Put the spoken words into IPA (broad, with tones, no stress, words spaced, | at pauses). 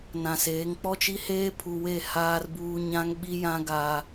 nã˨seː˨˦ŋ k͡pɔ˦t͡ʃi˦heː˦ pʰu˨we˦˨ haː˦rbuː˦ ɲã˦ŋɓi˦jã˦ ɡa˦